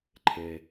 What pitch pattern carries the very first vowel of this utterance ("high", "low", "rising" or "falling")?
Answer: low